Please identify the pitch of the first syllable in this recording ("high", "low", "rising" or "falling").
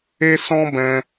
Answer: high